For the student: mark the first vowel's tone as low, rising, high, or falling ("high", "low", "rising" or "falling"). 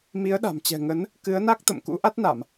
rising